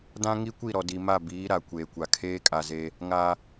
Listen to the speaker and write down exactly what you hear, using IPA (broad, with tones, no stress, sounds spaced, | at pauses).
d ã˦ ŋ i˦ kʷ i˦˨ ɾ ɔ˨ d i˨ m a˦˨ b iː˨˦ ɾ a˨ kʷ eː˨ kʷ a˨ kʰ eː˦ kʼ a˨ z eː˦ | ŋ aː˦